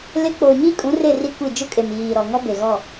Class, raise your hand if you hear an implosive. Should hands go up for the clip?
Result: no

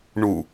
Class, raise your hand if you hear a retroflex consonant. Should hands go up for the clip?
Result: yes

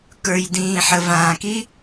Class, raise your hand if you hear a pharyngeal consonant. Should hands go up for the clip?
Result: yes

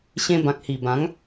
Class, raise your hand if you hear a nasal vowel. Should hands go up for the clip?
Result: yes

